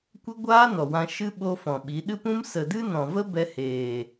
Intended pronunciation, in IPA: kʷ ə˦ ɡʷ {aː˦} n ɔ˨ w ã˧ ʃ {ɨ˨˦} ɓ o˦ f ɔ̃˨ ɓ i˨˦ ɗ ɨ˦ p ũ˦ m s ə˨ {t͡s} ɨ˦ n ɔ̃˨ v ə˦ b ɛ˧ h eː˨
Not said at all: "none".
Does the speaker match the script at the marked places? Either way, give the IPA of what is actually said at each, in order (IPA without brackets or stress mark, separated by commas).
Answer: aː˦, ɨ˦, d